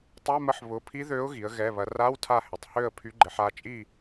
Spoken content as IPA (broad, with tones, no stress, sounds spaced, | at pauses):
tˤ ɛ˧˥˧ m ə˧˥˧ ħ β ʊ˩˧ pʰ i˧˥ ð ø˧˥ ʊ̯ ɣ i˩˧ ə̯ ɣ ɛ˩˧˩ β ɐ˩˧ r a˧˥˧ w tʰ a˦˨ h ɪ˩˧˩ tˤ h ø˦˨ ə̯ pʰ y˩˥ ɡ͡ǃ ɪ˩˧ ħ a˩˧˩ t͡ʃʼ i˦˨